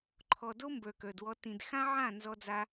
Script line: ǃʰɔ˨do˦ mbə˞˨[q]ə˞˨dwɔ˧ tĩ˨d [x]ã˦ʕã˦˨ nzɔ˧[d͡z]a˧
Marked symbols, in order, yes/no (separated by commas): no, yes, yes